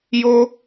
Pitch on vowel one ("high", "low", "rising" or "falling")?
high